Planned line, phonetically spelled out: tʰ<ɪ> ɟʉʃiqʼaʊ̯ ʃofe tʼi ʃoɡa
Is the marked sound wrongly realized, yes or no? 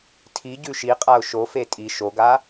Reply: yes